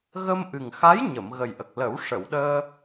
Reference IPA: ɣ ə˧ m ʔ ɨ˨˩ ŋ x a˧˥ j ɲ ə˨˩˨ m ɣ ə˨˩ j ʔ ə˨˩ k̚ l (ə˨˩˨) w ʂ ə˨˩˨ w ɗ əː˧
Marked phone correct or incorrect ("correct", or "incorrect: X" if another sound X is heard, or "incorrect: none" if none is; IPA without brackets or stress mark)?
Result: incorrect: ə˨˩˦